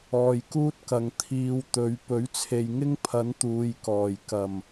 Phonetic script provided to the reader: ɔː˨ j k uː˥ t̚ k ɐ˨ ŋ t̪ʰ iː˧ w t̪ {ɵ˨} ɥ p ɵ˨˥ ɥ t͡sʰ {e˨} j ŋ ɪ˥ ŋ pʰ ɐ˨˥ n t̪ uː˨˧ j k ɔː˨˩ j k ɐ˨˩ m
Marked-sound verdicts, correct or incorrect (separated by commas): incorrect, correct